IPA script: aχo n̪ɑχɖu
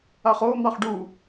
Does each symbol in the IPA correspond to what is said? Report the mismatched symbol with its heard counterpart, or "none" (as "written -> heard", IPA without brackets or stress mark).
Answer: none